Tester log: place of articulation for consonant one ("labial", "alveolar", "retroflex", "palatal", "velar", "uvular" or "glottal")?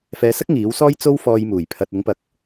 labial